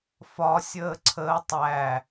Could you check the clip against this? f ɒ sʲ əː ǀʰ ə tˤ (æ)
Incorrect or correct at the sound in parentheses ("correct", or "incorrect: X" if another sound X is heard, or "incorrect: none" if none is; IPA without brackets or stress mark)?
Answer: correct